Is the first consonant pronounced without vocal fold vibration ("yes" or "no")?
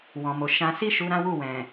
no